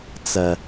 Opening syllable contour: low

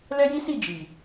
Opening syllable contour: high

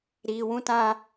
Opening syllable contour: low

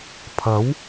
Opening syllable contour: rising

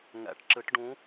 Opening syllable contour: rising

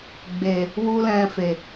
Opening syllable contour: low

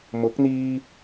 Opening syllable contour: rising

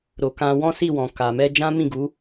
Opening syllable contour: low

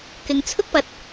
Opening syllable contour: low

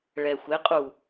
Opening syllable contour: low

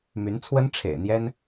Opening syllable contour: rising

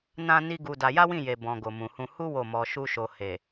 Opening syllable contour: high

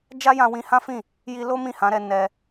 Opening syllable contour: high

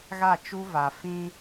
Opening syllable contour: falling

